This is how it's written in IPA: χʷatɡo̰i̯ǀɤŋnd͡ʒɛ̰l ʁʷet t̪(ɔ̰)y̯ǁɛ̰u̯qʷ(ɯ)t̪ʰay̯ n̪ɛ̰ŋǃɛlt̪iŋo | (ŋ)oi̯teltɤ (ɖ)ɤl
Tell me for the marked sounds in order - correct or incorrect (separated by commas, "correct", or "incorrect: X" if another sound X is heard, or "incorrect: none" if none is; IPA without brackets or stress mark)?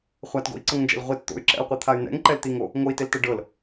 incorrect: o̰, correct, correct, correct